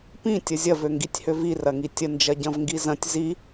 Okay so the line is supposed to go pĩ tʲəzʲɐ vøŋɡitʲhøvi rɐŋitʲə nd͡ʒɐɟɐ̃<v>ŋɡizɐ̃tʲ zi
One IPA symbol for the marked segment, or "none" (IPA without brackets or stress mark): v